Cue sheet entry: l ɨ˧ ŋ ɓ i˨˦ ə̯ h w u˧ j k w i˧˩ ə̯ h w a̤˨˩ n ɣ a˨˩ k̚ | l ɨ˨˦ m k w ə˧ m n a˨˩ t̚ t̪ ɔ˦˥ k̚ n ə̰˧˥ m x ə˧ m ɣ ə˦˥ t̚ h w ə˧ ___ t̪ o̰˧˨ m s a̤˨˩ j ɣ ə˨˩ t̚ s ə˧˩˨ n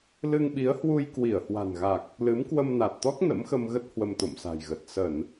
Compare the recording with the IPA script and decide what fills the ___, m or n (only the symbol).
m